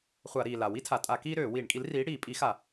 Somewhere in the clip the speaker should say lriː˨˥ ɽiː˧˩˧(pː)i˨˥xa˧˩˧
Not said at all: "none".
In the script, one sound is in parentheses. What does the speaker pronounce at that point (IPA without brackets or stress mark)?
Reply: pʼ